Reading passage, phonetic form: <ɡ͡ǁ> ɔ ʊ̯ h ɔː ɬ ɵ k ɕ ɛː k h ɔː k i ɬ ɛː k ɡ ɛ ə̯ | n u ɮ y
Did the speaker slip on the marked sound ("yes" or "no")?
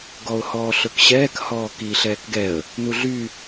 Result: yes